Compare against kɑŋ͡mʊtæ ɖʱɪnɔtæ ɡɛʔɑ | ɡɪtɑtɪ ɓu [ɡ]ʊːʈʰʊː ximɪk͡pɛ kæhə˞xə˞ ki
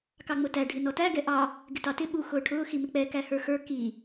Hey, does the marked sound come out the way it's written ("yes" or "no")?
no